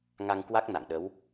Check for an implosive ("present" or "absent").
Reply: present